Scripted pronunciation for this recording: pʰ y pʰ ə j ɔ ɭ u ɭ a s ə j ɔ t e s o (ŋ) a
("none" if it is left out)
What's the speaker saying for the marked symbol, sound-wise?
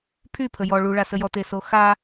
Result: x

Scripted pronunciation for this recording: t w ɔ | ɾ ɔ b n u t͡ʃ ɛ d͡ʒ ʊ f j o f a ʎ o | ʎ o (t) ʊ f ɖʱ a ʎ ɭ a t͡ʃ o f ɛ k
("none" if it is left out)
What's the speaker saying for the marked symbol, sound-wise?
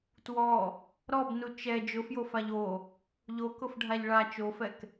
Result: k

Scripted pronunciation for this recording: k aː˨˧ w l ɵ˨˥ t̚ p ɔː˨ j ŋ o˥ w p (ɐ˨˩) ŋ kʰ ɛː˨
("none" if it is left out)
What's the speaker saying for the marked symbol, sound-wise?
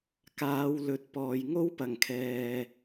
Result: ɐ˨˩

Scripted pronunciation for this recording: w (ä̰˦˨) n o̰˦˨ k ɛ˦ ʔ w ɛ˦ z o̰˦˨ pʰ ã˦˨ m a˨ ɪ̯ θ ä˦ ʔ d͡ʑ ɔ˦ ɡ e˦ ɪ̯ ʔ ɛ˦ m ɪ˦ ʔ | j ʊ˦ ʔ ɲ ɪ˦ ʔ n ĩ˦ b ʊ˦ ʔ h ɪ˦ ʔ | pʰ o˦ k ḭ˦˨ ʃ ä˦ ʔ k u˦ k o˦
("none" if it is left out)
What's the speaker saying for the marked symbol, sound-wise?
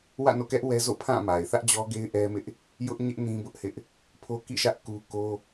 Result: ä̰˦˨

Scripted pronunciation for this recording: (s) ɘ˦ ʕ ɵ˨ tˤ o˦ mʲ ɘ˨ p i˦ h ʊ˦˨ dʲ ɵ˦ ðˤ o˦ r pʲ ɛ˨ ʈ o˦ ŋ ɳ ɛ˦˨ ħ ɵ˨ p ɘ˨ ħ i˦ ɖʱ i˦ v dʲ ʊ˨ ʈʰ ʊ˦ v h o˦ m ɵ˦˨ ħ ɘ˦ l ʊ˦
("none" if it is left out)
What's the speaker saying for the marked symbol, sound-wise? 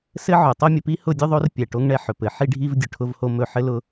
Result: s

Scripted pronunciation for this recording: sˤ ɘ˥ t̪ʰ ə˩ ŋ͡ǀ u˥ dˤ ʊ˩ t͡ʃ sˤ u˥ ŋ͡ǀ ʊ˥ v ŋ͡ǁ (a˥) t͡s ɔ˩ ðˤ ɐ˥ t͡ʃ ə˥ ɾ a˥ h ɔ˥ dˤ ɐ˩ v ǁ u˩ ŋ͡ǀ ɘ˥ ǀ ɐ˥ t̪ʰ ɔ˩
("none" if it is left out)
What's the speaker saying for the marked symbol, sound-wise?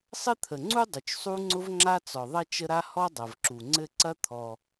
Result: a˥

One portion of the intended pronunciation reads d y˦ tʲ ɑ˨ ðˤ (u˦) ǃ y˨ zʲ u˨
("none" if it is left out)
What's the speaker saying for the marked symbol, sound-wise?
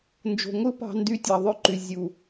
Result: ø˦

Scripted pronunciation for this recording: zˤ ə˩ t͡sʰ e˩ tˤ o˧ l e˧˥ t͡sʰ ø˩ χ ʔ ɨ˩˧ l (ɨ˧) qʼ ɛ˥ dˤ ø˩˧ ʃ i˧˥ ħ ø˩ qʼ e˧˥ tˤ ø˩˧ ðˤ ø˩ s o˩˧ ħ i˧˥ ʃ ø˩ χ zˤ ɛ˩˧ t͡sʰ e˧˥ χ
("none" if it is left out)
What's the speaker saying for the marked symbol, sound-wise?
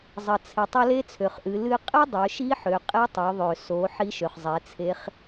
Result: ɨ˧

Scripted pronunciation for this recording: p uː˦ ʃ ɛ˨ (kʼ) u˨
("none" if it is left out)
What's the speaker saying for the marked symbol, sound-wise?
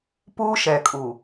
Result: kʼ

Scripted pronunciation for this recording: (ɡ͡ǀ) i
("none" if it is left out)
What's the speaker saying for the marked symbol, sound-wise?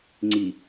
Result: ŋ͡ǀ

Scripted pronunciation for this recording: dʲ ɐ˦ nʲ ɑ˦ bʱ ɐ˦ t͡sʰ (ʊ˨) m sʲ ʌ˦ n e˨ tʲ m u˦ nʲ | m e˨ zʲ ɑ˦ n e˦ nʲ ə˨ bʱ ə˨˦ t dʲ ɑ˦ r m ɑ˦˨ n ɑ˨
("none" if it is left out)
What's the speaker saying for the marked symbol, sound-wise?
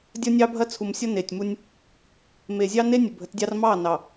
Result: u˨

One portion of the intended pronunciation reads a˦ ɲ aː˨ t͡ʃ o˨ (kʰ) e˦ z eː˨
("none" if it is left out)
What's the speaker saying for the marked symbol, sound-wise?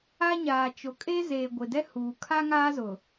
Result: kʼ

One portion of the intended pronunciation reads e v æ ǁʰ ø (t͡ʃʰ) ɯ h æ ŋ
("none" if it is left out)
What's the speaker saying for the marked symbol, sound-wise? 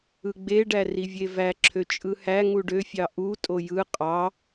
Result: t͡ʃʼ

